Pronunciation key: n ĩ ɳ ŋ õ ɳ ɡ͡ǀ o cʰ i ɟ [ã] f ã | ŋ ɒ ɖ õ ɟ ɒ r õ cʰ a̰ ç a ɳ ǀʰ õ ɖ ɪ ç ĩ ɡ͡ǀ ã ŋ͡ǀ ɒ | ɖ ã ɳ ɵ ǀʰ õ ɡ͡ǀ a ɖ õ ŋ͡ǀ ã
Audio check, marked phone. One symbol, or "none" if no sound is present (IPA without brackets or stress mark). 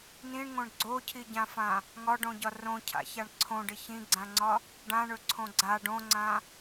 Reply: ã